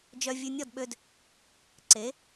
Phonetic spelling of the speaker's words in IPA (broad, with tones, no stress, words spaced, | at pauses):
d͡ʒœ˧vʲʉ˧nʲɔ˥˩dɓø˧d | ǀe˩˥